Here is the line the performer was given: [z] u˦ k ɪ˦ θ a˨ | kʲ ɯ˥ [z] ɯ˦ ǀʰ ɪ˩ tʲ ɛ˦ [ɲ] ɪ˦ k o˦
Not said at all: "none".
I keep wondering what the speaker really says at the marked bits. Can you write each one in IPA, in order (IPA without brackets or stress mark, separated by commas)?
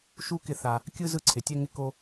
ʃ, z, ŋ